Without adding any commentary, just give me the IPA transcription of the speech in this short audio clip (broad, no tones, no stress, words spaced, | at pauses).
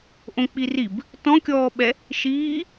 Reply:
ʔõk͡pirib | tɔ̃kʲɔːɓɛ | ʃiː